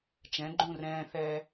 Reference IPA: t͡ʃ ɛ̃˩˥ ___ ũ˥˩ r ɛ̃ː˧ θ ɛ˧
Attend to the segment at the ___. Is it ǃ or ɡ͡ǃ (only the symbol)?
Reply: ɡ͡ǃ